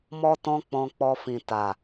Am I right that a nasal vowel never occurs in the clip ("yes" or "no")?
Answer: no